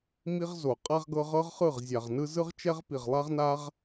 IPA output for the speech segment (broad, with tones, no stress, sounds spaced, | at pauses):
m i˧ ʁ z o˨ qʼ a˧ ʁ ɡ ɤ˧ ʁ ɤ˦ ʁ χ ɯ˦˨ ʁ zʲ a˨ ʁ n ɯ˦ z ɯ˧ ʁ t͡ʃ ɛ˧ ʁ p i˨ ʁ lˠ a˦ ʁ n a˦ ʁ